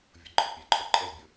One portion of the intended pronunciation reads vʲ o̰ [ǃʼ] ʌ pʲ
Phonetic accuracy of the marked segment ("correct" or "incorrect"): correct